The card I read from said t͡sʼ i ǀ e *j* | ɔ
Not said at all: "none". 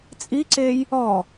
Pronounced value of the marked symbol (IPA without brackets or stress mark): j